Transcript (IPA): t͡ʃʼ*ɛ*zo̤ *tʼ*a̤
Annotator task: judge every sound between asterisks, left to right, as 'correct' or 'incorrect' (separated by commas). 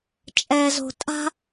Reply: correct, correct